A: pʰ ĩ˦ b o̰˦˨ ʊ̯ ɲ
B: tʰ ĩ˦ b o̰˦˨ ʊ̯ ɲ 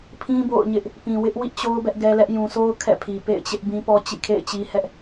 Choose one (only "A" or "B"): A